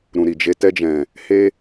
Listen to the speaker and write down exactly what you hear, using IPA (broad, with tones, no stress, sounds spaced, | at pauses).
ɾ ũ˨ ɾ i˨ d͡ʒ e˧ t ɛ˧ d͡ʒ ɛ̃˨ | h e˧